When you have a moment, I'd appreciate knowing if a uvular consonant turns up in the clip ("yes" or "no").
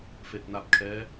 no